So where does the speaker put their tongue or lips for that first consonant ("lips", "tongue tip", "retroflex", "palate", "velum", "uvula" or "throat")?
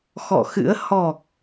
velum